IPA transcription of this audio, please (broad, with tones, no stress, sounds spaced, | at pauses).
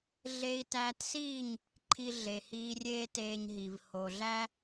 ɮ e˧ i̯ t æː˧ t s iː˦˨ ɲ | ǃʰ i˧ ɮ e˨ h iː˧ rʲ eː˦ t eː˧ ɲ ɦ i˨ v h o˨ ɮ æ˦